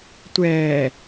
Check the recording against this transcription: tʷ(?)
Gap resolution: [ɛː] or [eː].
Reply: ɛː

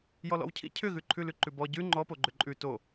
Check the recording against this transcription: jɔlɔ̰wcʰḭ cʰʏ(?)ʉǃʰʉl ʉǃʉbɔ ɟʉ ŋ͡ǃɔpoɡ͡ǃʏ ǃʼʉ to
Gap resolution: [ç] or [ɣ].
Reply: ɣ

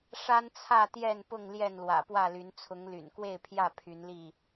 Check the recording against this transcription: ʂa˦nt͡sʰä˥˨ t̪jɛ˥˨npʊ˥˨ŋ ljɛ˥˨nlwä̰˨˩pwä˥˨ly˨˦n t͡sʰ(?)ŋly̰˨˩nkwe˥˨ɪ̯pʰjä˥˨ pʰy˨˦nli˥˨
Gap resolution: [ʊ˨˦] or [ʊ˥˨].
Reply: ʊ˨˦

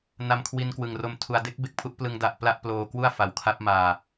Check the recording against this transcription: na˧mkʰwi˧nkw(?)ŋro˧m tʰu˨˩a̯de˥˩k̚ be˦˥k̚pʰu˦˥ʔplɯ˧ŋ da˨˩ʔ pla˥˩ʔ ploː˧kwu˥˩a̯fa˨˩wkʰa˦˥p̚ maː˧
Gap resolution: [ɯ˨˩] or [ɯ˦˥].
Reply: ɯ˨˩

